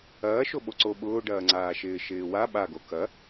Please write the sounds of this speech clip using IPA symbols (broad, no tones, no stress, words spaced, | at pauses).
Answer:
ɐːʃo ɓoǀo ɓʊːɖɐːŋ͡ǀaːʃɪː ʃɪːwa ɓaɡo kɐ